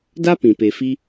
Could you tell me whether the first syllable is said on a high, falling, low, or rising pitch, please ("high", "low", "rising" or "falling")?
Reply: high